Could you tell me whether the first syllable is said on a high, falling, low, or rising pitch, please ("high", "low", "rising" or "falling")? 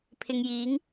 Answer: low